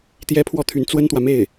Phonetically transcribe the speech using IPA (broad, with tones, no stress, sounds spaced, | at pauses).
t̪ j ɛ˥ pʰ w ɔ˥˩ t̪ʰ y˧˥ n t͡s w ə˥ n t̪ w ä˨ m e˥˩ ɪ̯